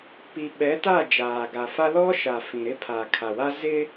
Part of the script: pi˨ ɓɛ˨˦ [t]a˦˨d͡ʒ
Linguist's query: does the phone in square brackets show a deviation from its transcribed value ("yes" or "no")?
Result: no